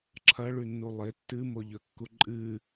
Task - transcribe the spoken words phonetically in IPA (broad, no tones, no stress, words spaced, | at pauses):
ǁʰɐɭʉnːu lˠe tːɨmoʎɵkːu ǃʼɨ